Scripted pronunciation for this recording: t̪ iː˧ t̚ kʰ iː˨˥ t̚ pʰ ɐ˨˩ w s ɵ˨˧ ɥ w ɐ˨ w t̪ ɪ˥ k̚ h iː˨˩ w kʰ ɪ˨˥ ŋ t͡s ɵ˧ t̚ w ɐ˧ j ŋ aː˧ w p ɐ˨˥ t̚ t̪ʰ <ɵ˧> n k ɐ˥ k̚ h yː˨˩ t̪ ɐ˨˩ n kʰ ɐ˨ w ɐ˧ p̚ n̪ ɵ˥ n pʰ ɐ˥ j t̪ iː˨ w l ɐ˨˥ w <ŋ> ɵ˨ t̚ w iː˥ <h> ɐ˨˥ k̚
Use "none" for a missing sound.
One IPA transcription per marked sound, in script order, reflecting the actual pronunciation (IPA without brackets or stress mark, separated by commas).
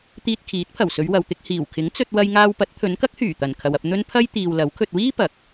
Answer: ɵ˨˧, kʰ, p